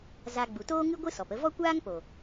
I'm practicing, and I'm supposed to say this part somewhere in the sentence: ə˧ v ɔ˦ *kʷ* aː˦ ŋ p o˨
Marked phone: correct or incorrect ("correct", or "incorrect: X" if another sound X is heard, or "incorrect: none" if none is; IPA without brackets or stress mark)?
correct